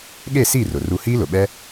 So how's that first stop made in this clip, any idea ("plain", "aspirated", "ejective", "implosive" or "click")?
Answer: implosive